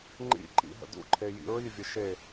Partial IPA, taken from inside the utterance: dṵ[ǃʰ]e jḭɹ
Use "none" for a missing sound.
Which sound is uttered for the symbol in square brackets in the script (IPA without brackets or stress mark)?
ǃʰ